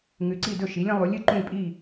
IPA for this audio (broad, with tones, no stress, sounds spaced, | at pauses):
ŋ ʉ˩˧ ǀ i˧˩ d ɵ˧˩ ʃ i˩˧ lʲ ɐ̃˩˧ lˠ u˩˧ lʲ ɨ˧˩ ǃ ũ˧˩ lʲ pʼ i˧˩